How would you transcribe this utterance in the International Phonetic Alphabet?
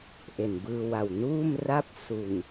ʔ e˨˩ n b ɯː˧ w a˨˩ w n uː˥˩ m r a˥˩ p̚ s u˨˩ n

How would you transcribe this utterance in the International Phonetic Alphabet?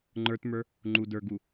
ŋ͡ǃ ə˞ t m ə˞ | ŋ͡ǃ u d ə˞ ɡ u

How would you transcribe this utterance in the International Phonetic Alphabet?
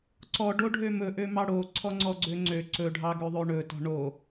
ǀ ɔ ɖ o ɖʱ ø m ɵ ʔ ø m ɑ ɽ o ǀʰ ɔ ŋ͡ǀ ɔ ɡ͡ǀ ø ŋ͡ǀ ø ǀ ɵ ɖʱ ɑ ɡ ø ðˤ ø ɳ ɵ t ɔ̤ ɳ o

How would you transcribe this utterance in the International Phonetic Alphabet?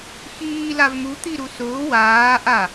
x iː l a v ŋ u t̪ i ɾ u s ʊː w aː ʔ a

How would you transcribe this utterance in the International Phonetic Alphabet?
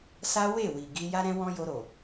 s a˦ w e˦˨ w i˨ ɡ i˧ j a˦ ɾ ɛ̃˦ w ɔ̃˦ j o˧ ɾ o˨

